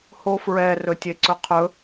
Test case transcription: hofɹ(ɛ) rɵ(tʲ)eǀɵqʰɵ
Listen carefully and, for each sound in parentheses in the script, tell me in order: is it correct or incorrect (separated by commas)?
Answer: correct, correct